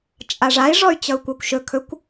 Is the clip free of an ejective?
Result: no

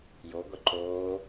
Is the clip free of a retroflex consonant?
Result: yes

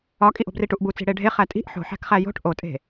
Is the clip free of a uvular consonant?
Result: no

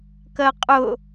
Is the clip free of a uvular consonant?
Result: no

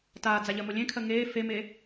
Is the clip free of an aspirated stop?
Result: no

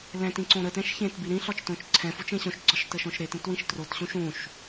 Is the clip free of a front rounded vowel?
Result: yes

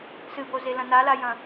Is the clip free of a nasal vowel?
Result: no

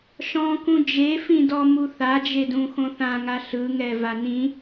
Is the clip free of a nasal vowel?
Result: no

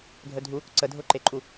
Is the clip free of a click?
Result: no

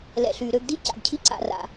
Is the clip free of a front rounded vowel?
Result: no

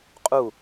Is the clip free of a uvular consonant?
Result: no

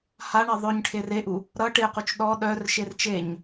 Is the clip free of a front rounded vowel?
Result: no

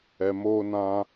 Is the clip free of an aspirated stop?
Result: yes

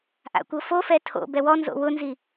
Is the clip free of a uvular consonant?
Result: yes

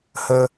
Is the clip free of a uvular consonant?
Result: yes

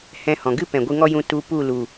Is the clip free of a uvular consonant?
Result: yes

